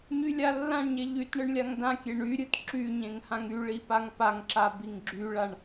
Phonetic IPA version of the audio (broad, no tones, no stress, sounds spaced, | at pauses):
ɲ y lʲ a lː ã ɳ ɲ e ʎ y t ɳ ɨ ɳ lʲ a ŋ d ã kʲ e ɳ y ɾʲ ɨ t ǁ y ɲ ẽ ŋ h ã ŋ y ɭ i p a ŋ p a ŋ ǁ a b i ŋ ɡ͡ǁ y ɭ a ɳ